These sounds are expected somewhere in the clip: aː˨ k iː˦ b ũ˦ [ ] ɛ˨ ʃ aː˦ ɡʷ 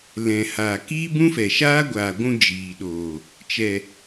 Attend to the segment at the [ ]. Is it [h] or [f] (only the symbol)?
f